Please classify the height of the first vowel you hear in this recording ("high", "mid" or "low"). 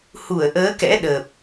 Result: high